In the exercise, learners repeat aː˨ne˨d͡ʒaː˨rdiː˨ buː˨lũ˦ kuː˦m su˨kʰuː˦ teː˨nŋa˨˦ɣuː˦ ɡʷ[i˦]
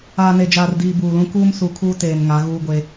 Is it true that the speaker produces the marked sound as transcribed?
no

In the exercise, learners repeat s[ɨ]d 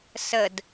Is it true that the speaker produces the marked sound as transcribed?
no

